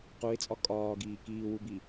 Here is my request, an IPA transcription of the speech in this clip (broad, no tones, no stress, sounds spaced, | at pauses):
q u ɪ̯ t͡sʼ ɒ kʼ ɒː ɡ iː k iː w u b i